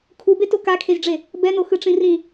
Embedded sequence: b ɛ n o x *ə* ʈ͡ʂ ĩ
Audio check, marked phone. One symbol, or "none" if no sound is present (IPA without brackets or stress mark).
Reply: ɯ